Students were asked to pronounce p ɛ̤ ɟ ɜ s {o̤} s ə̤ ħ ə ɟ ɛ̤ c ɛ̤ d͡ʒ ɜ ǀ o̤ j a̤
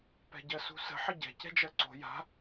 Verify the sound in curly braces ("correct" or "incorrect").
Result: incorrect